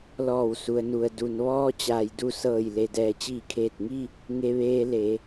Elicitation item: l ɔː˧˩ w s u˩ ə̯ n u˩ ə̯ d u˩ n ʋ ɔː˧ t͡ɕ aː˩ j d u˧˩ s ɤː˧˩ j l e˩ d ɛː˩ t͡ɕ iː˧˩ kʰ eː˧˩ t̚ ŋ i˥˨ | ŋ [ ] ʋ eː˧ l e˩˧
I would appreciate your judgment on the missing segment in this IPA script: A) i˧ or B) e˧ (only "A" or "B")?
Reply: B